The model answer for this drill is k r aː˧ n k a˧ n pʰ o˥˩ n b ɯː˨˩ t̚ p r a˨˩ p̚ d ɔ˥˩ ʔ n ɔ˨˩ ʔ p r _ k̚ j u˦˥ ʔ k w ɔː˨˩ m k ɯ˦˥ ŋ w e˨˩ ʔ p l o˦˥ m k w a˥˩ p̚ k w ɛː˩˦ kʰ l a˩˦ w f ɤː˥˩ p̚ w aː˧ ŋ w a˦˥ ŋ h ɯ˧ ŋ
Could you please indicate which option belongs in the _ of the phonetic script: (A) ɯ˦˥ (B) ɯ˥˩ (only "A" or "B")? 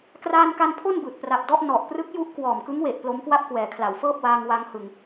A